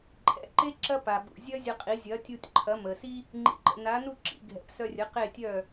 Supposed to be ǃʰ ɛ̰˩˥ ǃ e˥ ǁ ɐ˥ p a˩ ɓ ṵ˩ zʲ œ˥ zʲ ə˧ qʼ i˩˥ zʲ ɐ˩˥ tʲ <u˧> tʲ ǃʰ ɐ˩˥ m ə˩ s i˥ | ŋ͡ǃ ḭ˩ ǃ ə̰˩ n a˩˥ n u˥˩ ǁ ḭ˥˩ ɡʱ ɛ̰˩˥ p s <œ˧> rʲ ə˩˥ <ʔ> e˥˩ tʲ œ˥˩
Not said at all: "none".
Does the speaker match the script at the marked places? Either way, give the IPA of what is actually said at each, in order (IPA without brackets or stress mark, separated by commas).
u˧, œ˧, q